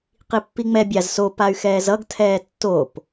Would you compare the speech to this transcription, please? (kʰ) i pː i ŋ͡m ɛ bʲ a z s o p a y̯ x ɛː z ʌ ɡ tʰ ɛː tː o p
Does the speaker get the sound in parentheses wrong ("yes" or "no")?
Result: yes